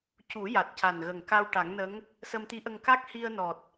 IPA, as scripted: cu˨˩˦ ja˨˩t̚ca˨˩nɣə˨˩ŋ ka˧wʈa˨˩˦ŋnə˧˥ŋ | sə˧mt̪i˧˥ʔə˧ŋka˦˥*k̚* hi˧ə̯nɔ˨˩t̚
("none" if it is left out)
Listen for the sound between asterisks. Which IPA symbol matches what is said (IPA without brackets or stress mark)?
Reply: k̚